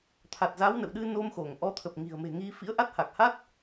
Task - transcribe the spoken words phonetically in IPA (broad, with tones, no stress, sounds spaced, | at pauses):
t̪ʰ a˨˩ t̚ z a˨˦ w n ə̰˧˨ w ɗ ɨ˧ n o˧ m x o˧˩ ŋ ʔ ɔ˨˦ t̪ʰ ə˨˩ p̚ ŋ i̤˨˩ ə̯ m e̤˨˩ ŋ i˧ f ḭ˧˥ ə̯ ʔ a˦˥ t̚ h a˨˩ k̚ h a˦˥ t̚